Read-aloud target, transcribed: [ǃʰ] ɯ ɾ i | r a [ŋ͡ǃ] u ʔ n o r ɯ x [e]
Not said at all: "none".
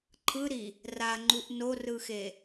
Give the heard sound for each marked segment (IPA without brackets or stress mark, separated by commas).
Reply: ǃʰ, ŋ͡ǃ, e